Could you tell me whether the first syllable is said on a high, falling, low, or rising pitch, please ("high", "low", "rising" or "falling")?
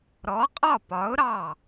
rising